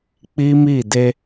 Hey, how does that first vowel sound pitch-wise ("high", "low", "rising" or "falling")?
high